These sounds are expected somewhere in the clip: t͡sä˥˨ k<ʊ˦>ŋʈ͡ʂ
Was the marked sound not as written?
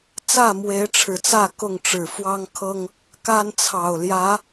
yes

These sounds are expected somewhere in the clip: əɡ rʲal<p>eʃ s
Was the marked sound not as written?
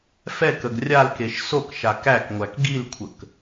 yes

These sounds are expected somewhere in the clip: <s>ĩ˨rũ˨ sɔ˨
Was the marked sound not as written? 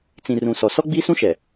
yes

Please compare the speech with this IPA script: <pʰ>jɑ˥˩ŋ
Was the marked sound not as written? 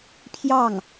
no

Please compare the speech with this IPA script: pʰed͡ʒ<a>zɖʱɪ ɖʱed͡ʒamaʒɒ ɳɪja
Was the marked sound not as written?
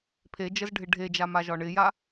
yes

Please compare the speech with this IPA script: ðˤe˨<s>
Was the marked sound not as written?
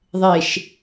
yes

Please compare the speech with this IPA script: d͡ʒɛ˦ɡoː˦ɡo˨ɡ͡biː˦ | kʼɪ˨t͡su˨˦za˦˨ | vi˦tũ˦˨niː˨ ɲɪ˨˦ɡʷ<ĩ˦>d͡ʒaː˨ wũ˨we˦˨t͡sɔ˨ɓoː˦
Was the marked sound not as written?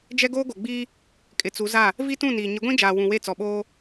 no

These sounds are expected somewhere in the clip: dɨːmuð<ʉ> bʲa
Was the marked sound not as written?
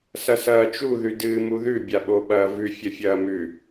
no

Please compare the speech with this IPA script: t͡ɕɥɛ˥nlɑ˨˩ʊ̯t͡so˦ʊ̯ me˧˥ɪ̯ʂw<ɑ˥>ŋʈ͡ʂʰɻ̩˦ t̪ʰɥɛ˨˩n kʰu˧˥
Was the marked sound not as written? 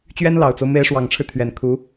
yes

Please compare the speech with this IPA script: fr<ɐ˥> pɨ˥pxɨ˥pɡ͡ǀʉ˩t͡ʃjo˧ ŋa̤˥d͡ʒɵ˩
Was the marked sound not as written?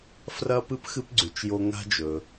no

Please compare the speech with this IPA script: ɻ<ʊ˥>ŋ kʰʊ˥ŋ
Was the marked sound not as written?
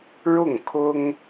yes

